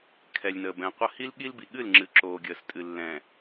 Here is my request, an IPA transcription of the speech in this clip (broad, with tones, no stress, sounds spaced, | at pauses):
kʰ ɛ˨ lʲ n əː˨ b ɛ̃˨˦ qʷ ə˦ h i˦ l ɠ i˦ l b i˨ ɠ ɨ˦˨ l ŋ͡ǁ ɨ˨ ǁ oː˨ ɡʲ əː˨ s tʼ ɨ˨ lː ɛ̃ː˨